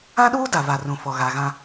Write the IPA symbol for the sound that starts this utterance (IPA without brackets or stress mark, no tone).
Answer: ã